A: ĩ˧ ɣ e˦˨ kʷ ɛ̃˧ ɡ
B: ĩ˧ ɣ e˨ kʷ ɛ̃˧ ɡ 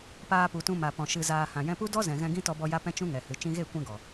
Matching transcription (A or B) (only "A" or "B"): A